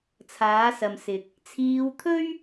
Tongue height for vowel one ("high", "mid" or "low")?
low